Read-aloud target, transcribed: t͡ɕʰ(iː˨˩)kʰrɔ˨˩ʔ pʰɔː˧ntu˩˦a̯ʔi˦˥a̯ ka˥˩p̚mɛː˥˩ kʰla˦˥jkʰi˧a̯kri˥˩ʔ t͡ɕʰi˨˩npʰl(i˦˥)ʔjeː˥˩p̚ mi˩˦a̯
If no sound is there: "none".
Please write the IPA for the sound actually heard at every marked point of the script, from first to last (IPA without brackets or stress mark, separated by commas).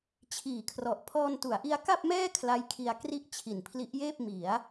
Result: iː˨˩, i˦˥